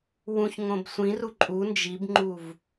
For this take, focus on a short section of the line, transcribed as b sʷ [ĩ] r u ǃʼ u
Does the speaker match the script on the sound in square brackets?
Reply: yes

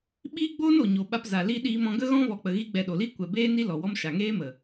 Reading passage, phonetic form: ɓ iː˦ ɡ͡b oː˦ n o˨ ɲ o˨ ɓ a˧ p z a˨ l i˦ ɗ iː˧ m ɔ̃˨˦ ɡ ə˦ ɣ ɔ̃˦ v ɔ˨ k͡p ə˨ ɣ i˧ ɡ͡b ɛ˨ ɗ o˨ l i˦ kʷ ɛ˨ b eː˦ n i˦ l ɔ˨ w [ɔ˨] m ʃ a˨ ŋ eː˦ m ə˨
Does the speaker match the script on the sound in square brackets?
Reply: no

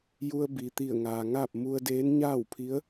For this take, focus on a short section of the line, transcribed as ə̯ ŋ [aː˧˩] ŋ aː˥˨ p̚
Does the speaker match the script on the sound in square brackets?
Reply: no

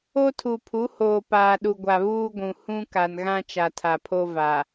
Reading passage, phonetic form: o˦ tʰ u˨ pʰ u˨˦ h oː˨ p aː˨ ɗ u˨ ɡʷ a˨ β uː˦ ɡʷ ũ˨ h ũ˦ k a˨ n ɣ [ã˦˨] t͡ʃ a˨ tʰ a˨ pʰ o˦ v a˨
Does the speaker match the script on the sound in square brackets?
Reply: no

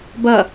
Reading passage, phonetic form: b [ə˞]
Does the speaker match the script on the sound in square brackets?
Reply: no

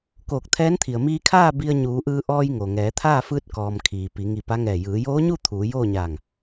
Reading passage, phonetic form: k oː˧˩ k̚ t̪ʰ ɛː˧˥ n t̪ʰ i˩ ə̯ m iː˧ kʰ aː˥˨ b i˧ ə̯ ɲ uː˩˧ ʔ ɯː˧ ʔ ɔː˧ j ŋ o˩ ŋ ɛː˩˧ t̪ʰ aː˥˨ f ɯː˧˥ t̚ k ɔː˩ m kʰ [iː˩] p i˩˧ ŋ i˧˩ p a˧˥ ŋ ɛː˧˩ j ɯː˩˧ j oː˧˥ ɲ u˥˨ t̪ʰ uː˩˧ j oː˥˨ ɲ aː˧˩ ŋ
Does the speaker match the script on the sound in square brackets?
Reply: yes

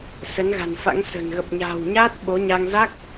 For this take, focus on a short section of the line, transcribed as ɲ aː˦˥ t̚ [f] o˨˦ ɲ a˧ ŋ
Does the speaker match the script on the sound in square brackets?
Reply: no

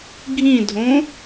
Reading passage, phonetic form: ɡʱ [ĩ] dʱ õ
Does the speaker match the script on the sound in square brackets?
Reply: yes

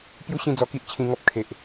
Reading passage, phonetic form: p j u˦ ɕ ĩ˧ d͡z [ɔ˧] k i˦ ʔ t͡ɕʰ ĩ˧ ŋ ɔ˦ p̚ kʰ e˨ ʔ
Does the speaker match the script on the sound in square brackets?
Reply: yes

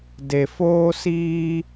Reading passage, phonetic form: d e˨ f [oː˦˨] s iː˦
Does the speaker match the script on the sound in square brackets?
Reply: no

